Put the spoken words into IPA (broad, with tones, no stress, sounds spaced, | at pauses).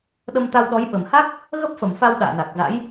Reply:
ɗ ə˧ m t̪ a˧ w ɗ ɔ˨˦ j ɓ ə˨˩ m h a˦˥ k̚ | ɣ ə˦˥ p̚ f ə˧˩ m f a˧ w ɗ a̰ː˧˨ n a˨˩ k̚ z a̰˧˥ j